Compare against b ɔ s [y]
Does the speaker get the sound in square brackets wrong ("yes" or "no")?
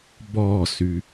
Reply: no